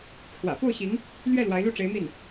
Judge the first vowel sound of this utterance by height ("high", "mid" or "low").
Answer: low